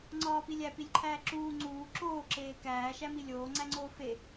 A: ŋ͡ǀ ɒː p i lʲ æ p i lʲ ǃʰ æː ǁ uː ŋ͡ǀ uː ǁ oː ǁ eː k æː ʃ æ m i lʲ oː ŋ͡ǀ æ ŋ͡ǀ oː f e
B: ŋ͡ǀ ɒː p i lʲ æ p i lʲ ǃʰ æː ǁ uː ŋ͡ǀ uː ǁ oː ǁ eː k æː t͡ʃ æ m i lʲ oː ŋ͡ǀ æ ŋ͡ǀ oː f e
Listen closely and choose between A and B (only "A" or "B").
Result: A